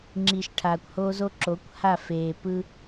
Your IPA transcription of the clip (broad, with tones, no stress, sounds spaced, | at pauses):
ŋ͡ǁ i˨ ʃ ʈʰ aː˨ kʷ h oː˦ z o˦ ǁ o˨˦ kʷ h a˦˨ f eː˨ p ɯ˦